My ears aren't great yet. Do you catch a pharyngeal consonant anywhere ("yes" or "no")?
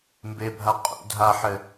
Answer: yes